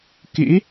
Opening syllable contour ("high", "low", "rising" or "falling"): rising